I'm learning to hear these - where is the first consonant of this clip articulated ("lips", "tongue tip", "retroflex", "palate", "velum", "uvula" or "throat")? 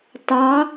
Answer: tongue tip